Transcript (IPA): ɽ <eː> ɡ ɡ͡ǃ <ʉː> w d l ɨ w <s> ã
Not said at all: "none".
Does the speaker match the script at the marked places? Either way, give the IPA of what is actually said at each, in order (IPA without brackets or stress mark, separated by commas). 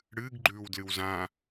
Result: ɨː, ʉː, z